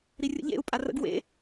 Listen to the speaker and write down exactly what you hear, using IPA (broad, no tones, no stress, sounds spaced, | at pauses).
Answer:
ɾ i rʲ ə̰ ʎ ḛ u̯ pʼ a r ə̰ ɡ w ḛ